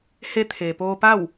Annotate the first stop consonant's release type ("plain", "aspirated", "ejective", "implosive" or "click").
aspirated